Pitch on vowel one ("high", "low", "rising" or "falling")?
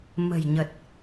low